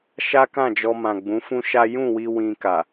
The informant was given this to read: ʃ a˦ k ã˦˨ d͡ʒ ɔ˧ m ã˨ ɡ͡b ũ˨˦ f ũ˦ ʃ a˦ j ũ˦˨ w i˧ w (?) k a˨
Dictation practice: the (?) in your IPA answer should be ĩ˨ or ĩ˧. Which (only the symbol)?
ĩ˧